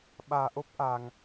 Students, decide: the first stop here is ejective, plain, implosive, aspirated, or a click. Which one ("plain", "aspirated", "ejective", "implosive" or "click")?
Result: implosive